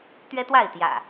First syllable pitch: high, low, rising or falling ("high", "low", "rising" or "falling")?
high